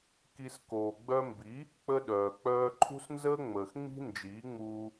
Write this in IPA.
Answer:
k i˧ s k oː˨ ɡ͡b œ˧ m b i˨˦ | k͡p ə˧ ɗ œː˨ k͡p œː˧ ǃʰ ṳ˦ s n z əː˦ ŋ͡m əː˨ x ŋ͡m i̤˦ n d͡ʒ iː˨˦ ŋ͡m uː˧

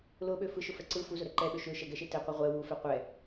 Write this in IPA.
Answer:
l ʊ ɓ ø f ɯ ʃ ʊ f ɛ ǀ ɯ f u z ʊ ɾ ɛ ǃ ɛ ɓ ø ʃ ø ʃ ɛ ɡ ɛ ʃ e t ɛ qʷ ɛ ʁʷ ɛ w u f ɛ qʷ ɛ

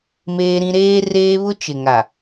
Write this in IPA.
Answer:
m eː˦ ɾ ĩ˦ ɾ eː˦ r eː˦ β ʊ˦ t͡ʃ ɪ˨ ŋ a˨

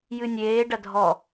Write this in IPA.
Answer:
j ɨ nʲ eː ɖ ɐ dʱ ɔ

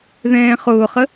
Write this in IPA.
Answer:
ð ɛ̃ː χ ʊː χ ə

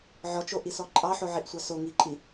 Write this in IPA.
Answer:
ʕ ɔ t͡ʃ o ʔ i s ɔ ǃʼ ɑ ħ o ʕ i ʔ sʷ ɑ s o ŋ i ǃʼ i

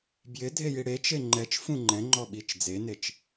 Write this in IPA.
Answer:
b j ɪ dʱ e j i ɽ e t͡ʃ e ŋ͡ǃ ɛ t͡ʃ f ũ ŋ͡ǃ ɛ̃ ŋ͡ǃ ɔ ɓ i t͡ʃ d͡z e n e t͡ʃ

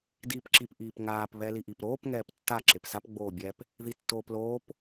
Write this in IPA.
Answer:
d iː p ǁ i p ʔ iː p ŋ aː p β ɛ l i ʔ i p ɾ oː p ŋ ɛː p tː a ǁ e p s a p ɡ͡b oː bʲ ɛ p | ð i tː oː p l oː p

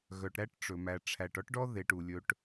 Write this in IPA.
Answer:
ɣ œ˨ ʈ ɾ æ˦ ʈ ʈ͡ʂ ɵ˨ m æ˨ ʈ͡ʂʰ æ˨ ʈ ɔ˦ ʈ ɖ ɔ˦ ð e˨ ʈ u˨ lʲ ɵ˦ ʈ

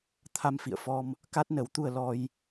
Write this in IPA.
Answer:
t̪ʰ a˧ m f ḭ˧˨ ə̯ f ɔ˧ m | k a˦˥ t̚ n ə˨˦ w t̪ u˧ ə̯ l ɔ˧ j

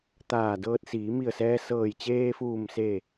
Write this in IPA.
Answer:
t̪ aː˧˩ d ɤː˧ t̚ s iː˩˧ m i˧˩ ə̯ s ɛː˧ s ɤː˧˩ j t͡ɕ eː˧ f uː˧˩ m s e˧˩

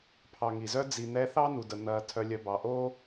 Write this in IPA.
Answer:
pʰ ɑ˨ ŋ i˩ z œ˥ d͡z i˨ n̪ ɛ˦ θ ɑ˥ n u˩ d ə˩ n̪ ɐː˨ tʰ œ˨ lʲ œ˨ b ɑ˩ ʔ oː˥

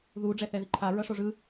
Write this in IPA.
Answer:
ð u ɖ͡ʐ ɛ θ ɛ ð i ǃʰ a ɹ ʌ ʂ o ʐ ɯ

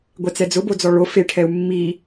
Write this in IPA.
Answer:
ɡʷ ɛ t͡s ɛ d͡z ʊ b o d͡z ɔ ɭ o f e ʈʰ ɛ u̯ mː i

